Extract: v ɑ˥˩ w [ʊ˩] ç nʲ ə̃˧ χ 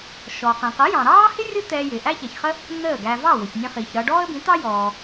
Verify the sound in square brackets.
correct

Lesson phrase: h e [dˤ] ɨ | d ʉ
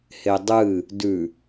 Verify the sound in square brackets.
correct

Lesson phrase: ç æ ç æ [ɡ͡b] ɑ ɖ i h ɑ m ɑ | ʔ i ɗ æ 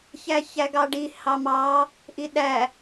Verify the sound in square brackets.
incorrect: ɡ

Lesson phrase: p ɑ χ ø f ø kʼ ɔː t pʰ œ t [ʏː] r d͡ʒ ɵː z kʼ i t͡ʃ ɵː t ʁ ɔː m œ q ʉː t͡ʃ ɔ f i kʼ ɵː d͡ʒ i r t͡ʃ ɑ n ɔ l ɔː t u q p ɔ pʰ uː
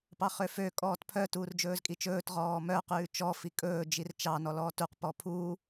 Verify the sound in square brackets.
incorrect: uː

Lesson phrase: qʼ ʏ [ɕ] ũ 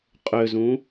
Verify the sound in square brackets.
incorrect: z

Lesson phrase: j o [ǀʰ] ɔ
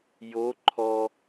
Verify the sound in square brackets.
incorrect: ǃʰ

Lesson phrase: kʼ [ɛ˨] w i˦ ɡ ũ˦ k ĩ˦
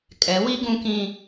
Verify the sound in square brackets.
incorrect: ɛ˨˦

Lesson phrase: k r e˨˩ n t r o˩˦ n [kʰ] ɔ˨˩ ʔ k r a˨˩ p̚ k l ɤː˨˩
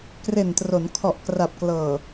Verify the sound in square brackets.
correct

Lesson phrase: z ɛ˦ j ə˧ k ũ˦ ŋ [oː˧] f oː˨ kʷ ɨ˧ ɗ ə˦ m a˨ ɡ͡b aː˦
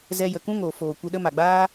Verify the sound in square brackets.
incorrect: oː˨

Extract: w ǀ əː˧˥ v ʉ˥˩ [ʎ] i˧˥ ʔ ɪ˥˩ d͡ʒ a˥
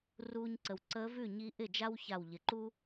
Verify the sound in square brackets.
incorrect: ɲ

